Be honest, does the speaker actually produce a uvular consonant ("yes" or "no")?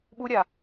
no